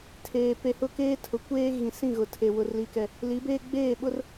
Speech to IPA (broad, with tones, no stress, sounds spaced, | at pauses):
tʰ eː˨ p e˨ h ʊ˦˨ k eː˦ tʰ ʊ˨ kʷ eː˦ ɣ ĩ˨ s ĩ˦˨ ɣ ʊ˨ tʰ e˨ w ʊ˦ r l i˦ k ɛ˦ | l i˨˦ b eː˦ ɡ͡b eː˦˨ ɓ ʊ˦ r